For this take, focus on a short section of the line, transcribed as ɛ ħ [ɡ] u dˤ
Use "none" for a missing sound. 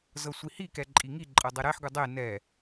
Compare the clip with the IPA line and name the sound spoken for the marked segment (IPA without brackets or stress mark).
ɡ